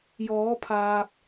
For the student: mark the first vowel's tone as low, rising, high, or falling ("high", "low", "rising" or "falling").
rising